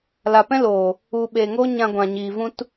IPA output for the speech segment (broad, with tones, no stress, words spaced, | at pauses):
la˨pɛ̃˦loː˨ | u˨ ɓeː˨ŋoː˦ ɲã˧ɡʷã˨ ɲiː˨vũ˦t